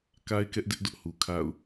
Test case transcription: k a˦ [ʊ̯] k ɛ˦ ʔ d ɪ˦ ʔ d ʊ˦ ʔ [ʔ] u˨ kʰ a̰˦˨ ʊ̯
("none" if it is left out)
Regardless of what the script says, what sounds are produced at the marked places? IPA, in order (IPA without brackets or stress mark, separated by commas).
ɪ̯, h